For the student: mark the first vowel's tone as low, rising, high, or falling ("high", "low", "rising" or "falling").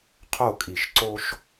falling